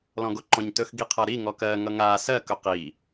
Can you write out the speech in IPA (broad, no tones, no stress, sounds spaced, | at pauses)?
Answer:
l ɔ̃ ɡ o ǃ ɔ̃ ɲ t ɵ x ɡ i qʰ ʌ ɾ i ŋ ɔ k ɜ ŋ ʌ ŋ a s ɜ k ɵ q i